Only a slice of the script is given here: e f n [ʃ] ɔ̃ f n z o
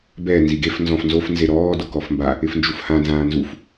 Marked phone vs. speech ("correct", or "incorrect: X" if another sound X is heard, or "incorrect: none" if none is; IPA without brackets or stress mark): incorrect: z